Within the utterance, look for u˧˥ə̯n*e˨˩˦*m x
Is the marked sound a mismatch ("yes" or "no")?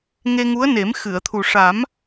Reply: no